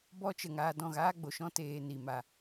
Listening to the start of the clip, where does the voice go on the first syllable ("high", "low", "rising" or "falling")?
high